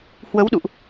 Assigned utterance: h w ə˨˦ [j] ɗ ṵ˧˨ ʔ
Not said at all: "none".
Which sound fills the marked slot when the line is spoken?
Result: w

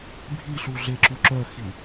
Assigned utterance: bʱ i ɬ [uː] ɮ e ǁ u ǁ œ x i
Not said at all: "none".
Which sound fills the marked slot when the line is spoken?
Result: u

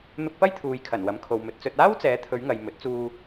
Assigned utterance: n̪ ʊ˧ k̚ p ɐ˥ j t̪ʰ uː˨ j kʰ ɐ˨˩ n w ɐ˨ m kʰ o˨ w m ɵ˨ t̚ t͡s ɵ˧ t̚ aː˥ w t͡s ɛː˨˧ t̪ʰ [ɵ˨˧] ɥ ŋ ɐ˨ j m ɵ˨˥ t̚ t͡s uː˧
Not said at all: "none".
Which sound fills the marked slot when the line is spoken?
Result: ɵ˨˧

